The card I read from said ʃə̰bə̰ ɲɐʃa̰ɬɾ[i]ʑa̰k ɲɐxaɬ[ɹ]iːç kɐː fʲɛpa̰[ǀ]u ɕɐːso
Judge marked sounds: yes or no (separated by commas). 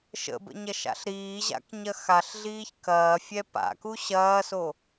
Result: no, no, no